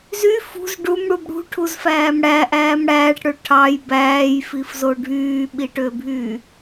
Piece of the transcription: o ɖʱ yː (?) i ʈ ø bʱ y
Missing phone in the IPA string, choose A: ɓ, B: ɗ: A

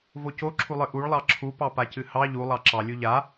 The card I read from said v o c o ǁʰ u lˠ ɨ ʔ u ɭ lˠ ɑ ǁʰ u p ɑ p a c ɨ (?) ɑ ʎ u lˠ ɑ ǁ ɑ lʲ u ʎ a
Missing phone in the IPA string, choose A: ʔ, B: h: B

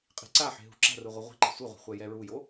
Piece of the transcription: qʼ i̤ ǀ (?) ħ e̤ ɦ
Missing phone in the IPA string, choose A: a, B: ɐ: A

